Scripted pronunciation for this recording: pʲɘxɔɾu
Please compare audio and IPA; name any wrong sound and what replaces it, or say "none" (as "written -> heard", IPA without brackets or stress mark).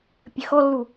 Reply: ɾ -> lː